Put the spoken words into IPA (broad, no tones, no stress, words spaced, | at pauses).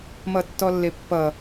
mʌtːɔlːepːʌ